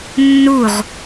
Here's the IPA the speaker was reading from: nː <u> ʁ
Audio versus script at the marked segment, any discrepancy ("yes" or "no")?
no